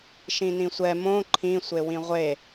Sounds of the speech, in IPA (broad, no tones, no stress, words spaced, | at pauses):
ʃĩnĩsʷɛ mõ ǃʰĩ sʷewĩʁʷe